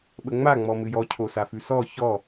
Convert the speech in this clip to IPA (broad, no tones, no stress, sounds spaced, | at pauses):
ɓ ə ŋ͡m a ŋ͡m ɔ m ɨ j ɔ cʰ o s a f ʉ s ɔ ç ɔ